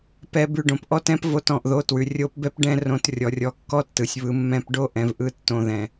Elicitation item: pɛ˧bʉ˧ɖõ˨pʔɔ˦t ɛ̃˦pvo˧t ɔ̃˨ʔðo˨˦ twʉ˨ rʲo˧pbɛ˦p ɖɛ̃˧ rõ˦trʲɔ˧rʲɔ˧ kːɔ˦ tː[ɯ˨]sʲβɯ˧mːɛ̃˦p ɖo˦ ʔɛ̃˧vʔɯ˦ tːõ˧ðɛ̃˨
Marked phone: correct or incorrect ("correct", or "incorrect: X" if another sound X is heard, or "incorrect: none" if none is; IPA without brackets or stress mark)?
correct